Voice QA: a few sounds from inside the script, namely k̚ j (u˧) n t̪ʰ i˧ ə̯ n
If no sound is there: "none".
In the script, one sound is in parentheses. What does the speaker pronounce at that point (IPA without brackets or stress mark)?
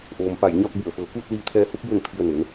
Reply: u˥˨